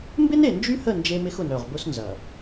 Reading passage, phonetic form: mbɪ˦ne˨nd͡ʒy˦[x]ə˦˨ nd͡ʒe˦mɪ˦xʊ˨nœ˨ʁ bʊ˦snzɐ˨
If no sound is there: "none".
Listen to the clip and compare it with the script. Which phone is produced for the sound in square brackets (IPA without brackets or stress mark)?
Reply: h